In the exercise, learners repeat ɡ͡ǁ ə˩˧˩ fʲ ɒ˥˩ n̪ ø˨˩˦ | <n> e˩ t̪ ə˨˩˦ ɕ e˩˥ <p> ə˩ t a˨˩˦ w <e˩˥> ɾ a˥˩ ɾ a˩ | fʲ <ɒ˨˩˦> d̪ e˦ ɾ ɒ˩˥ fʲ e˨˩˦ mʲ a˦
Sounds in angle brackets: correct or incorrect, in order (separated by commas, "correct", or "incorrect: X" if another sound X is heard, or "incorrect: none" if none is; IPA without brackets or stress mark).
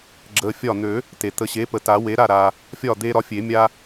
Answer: incorrect: t, correct, correct, incorrect: ɒ˥˩